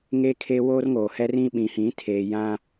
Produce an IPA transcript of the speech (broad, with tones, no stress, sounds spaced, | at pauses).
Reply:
ŋ e˦ kʰ e˦ w oː˦ r ŋ oː˨ h ɛ˦ r ĩ˦ ɓ ĩ˨ h ĩ˨˦ tʰ eː˨ j ã˦